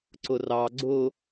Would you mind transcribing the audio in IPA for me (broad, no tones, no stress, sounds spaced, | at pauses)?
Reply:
ǀ ʊ r ɑ ɡ͡ǀ ʊ